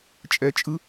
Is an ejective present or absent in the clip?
present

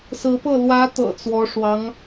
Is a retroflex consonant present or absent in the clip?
present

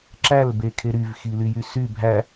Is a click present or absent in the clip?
present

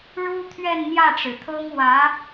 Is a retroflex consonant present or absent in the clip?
present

